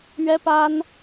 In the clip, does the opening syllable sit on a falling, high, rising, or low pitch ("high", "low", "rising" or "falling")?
high